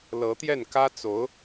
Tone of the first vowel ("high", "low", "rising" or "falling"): rising